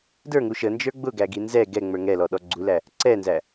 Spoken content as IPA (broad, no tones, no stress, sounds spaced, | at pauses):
d ə˞ ŋ u ʃ ə n d͡ʒ ə˞ ɡ͡b ʊ ɡ æ ɡ i n z ɛ ɡ ɛ ŋ͡m ə˞ ŋ ɛ l ɔ ɗ ɔ ɡ͡ǀ u l æ | ǀ ɛ n z æ